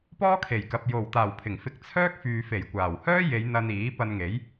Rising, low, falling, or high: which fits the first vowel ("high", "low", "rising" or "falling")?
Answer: high